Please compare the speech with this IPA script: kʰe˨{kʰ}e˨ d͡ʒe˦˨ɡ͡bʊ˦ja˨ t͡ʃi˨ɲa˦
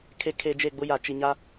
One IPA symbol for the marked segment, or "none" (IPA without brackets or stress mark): kʰ